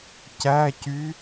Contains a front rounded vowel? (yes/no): yes